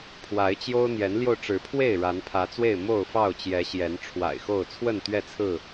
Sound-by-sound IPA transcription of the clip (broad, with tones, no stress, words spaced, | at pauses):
pʰwa˨˦ɪ̯t͡ɕjo˦ʊ̯ n̪jɛ˨˦nljo˧ʊ̯ʈ͡ʂɻ̩˨˦pʰwe˥˨ɪ̯ ɻa˨˦npʰä˨˦t͡swe˥˨ɪ̯ mo˥˨ʊ̯fɑ˥˨ʊ̯t͡ɕjɛ˨˦ ɕjɛ˨˦n ʈ͡ʂʰwa̰˨˩ɪ̯xo˥˨ʊ̯ t͡sʰwə˥˨nt̪ɥɛ˥˨t͡sʰɹ̩˥˨